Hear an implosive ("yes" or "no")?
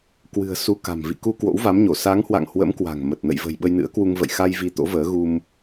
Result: yes